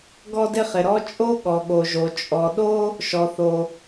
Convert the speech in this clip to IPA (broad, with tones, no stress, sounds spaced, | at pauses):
ɡ ɔ˥ d ɪ˥ χ ɪ˩ ɾ ɔ˥ t͡ʃʼ o˥ ɠ ɔ˩ ɠ o˩ ʒ o˩ t͡ʃʼ ɔ˩ ɗ o˥ | ʃ ɔ˩ θ o˩